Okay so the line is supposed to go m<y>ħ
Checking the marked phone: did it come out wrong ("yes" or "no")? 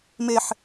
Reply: yes